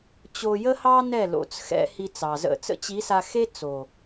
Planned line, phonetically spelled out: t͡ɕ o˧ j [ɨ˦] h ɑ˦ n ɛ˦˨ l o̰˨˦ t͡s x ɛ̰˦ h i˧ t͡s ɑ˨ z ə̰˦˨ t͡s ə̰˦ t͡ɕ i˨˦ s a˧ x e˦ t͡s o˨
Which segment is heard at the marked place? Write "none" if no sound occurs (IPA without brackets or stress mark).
ə˦